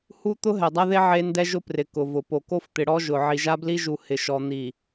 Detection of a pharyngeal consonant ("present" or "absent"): present